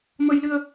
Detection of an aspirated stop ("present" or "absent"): absent